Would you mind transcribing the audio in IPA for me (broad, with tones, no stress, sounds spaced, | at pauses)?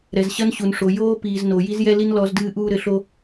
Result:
ɾ ɛ˨ z ɕ ɐ˦ n ɕ u˨ n ʂ o˨ j oː˦ p iː˨ z n o˨ j i˦ z j ɛ˦ l i˦ n l ɔ˨˦ z d ɨː˦ ʔ uː˦ ɾ ɘ˨ ɬ o˦